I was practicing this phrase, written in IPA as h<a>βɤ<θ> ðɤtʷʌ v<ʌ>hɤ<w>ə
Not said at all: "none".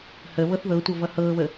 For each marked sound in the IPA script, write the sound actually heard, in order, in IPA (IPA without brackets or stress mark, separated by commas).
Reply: ə, θ, ʌ, β